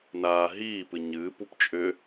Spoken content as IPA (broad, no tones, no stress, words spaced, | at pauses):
naː ɦiːpɨ ɲɨːpup t͡ʃʼʏ